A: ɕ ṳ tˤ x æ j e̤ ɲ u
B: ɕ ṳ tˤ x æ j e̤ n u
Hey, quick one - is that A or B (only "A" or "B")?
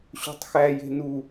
B